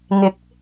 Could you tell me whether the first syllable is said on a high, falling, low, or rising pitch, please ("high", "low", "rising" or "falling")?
rising